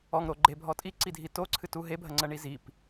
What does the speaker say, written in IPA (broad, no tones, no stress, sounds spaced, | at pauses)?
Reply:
ɔ ŋ ɾ o ɡ͡ǃ e bʱ ɔ tʼ i ǀ i dʱ i t o ǀʰ ɨ t u ɦ e bʱ ɐ ŋ͡ǀ ɐ ɳ i z i p